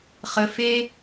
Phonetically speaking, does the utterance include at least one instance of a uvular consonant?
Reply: yes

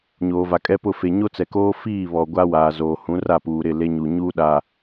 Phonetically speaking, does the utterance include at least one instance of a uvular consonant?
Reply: no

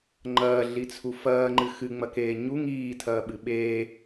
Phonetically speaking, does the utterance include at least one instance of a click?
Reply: yes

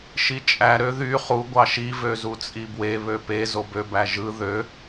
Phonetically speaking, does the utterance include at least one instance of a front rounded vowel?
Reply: yes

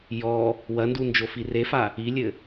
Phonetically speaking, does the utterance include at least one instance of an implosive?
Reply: no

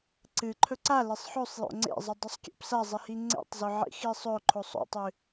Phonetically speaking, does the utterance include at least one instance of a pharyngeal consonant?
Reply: yes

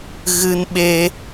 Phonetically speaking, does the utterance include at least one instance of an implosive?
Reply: yes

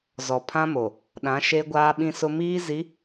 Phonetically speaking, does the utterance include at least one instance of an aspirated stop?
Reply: yes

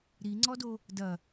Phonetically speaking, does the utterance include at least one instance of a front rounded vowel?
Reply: no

